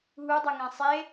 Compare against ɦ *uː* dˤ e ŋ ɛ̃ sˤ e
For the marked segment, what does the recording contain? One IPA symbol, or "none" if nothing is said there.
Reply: u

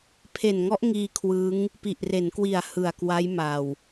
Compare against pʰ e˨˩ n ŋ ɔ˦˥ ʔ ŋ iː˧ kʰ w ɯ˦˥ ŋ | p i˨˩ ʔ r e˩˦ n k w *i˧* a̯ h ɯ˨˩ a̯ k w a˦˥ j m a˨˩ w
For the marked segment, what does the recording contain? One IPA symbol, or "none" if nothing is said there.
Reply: i˨˩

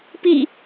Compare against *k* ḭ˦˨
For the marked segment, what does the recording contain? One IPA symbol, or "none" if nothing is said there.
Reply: p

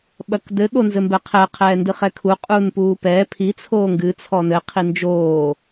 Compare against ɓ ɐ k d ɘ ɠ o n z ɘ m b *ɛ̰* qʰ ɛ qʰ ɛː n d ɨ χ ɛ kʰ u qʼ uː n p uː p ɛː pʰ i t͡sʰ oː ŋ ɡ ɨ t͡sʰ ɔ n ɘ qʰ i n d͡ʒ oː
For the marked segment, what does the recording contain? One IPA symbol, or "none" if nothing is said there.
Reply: ɛ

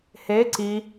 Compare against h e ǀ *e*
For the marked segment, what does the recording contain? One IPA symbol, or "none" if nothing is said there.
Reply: i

